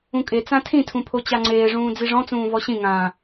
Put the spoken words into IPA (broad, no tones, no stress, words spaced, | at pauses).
ũkʼe t͡sãtʰĩtʰũpʰo t͡ɕaŋ͡ǀeːʐũː d͡ziʐɔ̃t͡sũː vɔɕĩŋãː